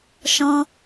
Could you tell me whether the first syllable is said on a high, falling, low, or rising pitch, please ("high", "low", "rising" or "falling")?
high